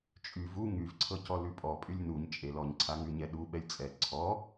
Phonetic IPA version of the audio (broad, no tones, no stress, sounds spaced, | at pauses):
t͡ʃʼ y v u ŋ y v ǀʰ ɤ c ɔ l ʉ pʼ ɔ pʼ y lʲ n u ɲ t͡ʃʼ e l ɔ ɲ ǀʰ a ŋ ʉ ɲ ɛ ɗ u ɓ ɛ lʲ t͡sʼ ɛ ǀʰ ɔ